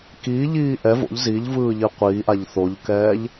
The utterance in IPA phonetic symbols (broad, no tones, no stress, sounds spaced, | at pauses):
k iː ʎ iː ʔ ɛ v o̰ ʎ z i ʎ v ɯː ʎ i qʷ iː ʔ a ʎ θ o ʎ k ɛː ʎ